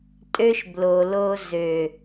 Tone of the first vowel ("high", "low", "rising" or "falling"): high